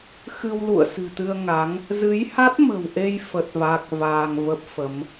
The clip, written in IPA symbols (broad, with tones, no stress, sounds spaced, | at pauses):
x ɨ˧ w l ṵ˧˨ ə̯ s ɨ̤˨˩ t̪ ɨ˧ ə̯ ŋ a˨˦ ŋ | z ɨ˨˦ j h a˦˥ t̚ m ə̤˨˩ w ʔ e˧ j f ə˦˥ t̚ v a˦˥ k̚ v aː˧ ŋ v ə˦˥ p̚ f ə˨˦ m